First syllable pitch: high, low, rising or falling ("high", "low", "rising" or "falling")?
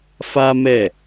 high